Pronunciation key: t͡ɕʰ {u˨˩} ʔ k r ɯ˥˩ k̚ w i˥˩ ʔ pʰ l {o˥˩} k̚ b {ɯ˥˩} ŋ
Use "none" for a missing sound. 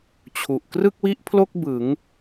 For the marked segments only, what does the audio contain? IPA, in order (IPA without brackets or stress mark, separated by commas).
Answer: u˨˩, o˥˩, ɯ˩˦